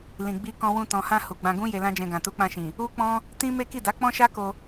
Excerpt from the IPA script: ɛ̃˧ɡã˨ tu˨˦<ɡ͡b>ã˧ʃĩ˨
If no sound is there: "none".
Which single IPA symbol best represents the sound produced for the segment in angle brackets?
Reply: k͡p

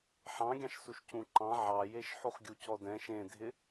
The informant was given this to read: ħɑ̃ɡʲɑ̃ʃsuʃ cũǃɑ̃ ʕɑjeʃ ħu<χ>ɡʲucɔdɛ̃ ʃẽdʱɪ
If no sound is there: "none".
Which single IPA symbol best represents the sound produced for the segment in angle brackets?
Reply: χ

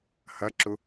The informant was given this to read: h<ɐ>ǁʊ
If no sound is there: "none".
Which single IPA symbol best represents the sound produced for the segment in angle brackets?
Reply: ɐ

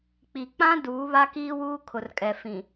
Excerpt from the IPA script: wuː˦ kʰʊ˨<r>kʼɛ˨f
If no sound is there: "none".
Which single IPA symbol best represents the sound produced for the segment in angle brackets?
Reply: r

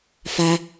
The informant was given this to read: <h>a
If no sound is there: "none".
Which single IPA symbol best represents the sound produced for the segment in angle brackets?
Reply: f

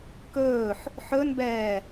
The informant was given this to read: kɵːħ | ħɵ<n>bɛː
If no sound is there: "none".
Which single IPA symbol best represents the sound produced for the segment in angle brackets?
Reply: n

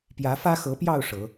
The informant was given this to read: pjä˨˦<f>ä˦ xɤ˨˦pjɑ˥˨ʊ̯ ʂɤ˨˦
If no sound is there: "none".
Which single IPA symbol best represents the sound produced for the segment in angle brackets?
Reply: f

